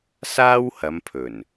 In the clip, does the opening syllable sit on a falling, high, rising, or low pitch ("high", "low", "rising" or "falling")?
high